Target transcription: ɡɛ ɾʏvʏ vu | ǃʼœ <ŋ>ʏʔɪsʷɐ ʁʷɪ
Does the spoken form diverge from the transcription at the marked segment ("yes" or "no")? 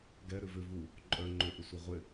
yes